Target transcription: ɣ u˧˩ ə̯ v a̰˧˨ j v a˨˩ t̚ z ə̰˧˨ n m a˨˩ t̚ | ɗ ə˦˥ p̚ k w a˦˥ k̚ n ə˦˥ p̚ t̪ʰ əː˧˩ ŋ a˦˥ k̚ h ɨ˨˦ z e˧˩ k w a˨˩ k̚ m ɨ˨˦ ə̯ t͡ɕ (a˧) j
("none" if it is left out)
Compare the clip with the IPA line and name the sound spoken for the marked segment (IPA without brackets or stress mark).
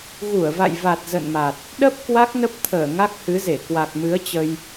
ə˧